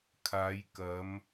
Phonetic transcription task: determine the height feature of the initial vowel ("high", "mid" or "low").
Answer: low